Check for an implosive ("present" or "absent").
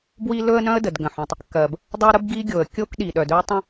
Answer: present